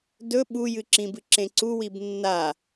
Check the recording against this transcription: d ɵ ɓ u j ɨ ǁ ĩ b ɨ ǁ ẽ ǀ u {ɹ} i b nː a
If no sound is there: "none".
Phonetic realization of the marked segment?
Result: w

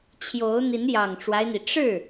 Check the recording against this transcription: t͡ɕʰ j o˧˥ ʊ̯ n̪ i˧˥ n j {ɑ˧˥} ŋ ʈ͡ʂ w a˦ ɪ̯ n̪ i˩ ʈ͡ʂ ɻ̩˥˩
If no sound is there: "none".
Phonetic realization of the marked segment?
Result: ɑ˨˩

